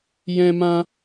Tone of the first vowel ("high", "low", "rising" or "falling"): high